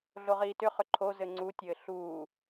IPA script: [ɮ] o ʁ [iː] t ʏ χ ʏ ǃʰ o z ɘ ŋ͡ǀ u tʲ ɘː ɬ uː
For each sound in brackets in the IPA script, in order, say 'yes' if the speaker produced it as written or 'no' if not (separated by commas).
yes, yes